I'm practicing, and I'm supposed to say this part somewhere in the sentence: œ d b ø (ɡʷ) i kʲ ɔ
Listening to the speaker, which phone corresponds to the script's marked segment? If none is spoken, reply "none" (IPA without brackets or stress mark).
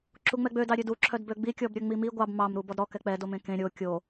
ɡ͡b